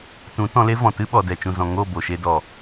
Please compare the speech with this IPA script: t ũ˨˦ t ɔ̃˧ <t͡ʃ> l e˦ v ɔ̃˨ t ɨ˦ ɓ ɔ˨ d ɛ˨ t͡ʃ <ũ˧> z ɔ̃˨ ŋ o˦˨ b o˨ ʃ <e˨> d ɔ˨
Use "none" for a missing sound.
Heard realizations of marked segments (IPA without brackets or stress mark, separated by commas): none, ũ˨, e˧